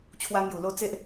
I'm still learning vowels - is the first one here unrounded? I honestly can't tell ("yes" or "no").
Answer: yes